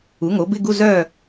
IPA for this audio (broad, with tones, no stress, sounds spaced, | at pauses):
u˩˧ ŋ o˩˧ b ɪ˧˥˧ ɡ u˧˥˧ z œː˥˨